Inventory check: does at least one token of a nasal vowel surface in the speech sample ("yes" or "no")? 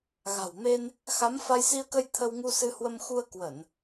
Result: no